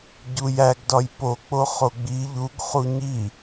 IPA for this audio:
ɟ u j æ ɡ d ɒ j p o k͡p o χ o ɡ͡b i ʎ u ɡ χ u ɲ i

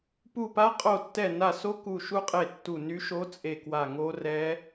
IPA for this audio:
p u˦˨ p a˦˥ qʼ o˦˨ tː ɛ˦˨ n a˦˨ s o˦˥ k u˦˨ ʃ u˦˥ qʼ e˦˨ tː u˦˨ n y˦˥ ʃ o˦˥ t͡sʼ e˦˨ k w a˦˨ ŋ o˦˥ r ɛ˦˥

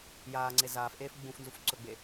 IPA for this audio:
j aː ŋ͡ǀ e z aː f ʔ eː f ɡ͡b ũ f n z u f ǀ ɵ ɡ͡b e

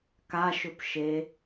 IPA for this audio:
k a ʃ ɵ p ʃ e

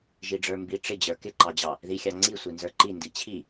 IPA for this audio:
ʒ i ɖ͡ʐ ə˞ m b i ʈ͡ʂ ɪ d͡ʑ ə˞ k ɪ ǃ ɑ d͡ʑ ɑ | ð i xʲ ɑ ŋ͡ǀ i sʷ i n z ə˞ ǃ i n d i t͡ɕʰ i

